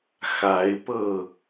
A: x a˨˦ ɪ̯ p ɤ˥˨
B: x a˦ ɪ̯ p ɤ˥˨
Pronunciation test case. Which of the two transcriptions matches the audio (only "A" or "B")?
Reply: A